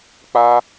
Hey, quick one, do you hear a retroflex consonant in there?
no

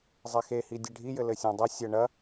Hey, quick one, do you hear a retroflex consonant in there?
yes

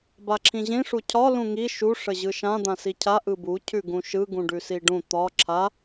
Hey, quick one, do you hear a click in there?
yes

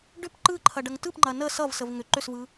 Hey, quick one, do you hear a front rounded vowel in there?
yes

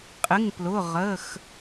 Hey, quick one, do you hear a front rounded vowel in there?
no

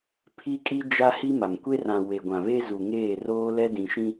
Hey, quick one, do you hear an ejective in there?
yes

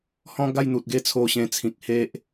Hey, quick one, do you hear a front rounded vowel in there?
no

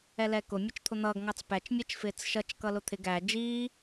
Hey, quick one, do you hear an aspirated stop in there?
yes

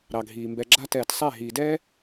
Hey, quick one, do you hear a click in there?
yes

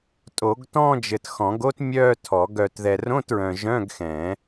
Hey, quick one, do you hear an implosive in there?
no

